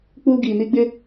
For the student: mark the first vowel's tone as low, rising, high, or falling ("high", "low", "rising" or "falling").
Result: high